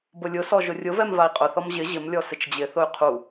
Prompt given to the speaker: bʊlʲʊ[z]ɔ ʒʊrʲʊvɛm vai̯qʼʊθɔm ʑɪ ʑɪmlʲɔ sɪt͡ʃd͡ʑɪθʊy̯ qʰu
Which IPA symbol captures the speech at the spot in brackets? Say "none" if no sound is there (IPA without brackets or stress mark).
s